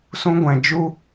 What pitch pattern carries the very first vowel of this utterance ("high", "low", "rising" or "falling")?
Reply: high